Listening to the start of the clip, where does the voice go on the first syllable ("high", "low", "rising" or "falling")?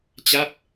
falling